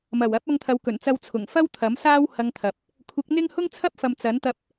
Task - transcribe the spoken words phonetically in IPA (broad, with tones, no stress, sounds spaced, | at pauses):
m ɐ˨˩ w ɐ˨˥ p̚ ɐ˧ ŋ t̪ʰ ɐ˨˧ w k ɵ˨˩ n t͡s ɐ˧ w t͡sʰ ʊ˨˩ ŋ f ɐ˥ w t̪ʰ ɐ˨˥ m s aː˥ w h ɐ˧ ŋ t̪ʰ ɐ˨ p̚ | kʷʰ ɪ˨˥ k̚ n̪ ɪ˥ ŋ h ʊ˥ ŋ t͡sʰ ɐ˥ p̚ f ɐ˨ m t͡s ɐ˨˥ n t̪ ɐ˧ p̚